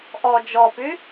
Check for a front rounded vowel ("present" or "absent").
present